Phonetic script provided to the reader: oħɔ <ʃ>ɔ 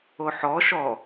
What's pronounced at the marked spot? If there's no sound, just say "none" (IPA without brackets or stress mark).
ʃ